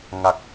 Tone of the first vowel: low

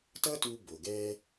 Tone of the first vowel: high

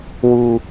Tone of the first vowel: low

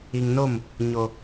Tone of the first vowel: low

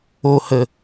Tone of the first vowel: low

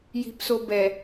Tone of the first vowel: low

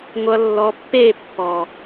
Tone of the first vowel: low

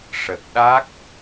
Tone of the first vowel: low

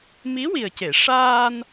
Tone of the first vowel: rising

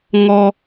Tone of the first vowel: high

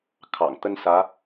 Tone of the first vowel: low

